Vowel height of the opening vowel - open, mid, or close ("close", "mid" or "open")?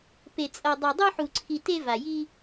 mid